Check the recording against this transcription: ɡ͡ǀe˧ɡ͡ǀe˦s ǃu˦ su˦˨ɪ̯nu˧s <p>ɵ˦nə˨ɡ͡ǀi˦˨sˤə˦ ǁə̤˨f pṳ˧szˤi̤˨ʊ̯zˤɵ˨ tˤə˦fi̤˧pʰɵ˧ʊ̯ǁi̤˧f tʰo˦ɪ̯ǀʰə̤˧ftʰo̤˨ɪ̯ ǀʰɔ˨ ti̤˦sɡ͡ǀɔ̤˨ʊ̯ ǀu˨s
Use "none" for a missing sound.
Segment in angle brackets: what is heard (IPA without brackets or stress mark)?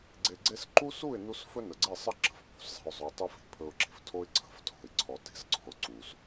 f